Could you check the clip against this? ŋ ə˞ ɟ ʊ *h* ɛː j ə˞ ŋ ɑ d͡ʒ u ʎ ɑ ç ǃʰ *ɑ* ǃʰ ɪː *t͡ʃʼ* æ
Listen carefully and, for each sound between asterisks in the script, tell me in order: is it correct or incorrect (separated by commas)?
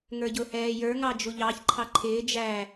correct, correct, incorrect